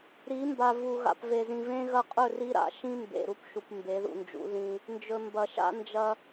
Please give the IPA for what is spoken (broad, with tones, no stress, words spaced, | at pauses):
ɾi˨˦mba˨ vu˨ ɣa̰˨pve˨ zĩ˨vẽ˦ɣɐ˦ qʼɵ˦˨ri˦ɾa̰˨ ʃĩ˦ mbḛ˨ɾu˦pʃu˨p mbe˨˦ðṵ˨nd͡ʒṵ˨˦ ðĩ˦ | nd͡ʒɵ˨mbɐ˨ʃa̰˦ nd͡ʒɐ˦